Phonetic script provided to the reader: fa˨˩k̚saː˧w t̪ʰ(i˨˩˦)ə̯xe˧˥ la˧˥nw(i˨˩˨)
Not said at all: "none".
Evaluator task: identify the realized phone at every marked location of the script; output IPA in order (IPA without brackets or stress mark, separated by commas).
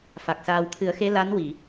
ɨ˨˩˦, i˨˩˨